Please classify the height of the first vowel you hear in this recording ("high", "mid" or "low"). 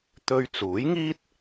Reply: mid